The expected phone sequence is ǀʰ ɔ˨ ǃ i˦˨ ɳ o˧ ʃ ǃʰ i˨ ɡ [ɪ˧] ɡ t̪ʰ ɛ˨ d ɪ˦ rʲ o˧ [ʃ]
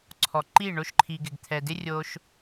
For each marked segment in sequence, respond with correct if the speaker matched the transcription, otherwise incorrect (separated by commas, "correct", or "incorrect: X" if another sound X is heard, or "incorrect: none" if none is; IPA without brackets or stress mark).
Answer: incorrect: ɪ˨, correct